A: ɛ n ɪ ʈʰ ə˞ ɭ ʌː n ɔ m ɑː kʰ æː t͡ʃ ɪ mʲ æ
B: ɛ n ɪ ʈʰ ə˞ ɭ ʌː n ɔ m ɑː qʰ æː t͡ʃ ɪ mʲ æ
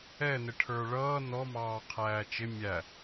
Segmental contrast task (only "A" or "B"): B